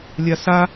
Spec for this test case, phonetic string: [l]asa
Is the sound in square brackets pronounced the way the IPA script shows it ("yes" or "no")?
no